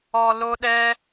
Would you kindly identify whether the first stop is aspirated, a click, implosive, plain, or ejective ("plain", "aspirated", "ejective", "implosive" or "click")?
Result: implosive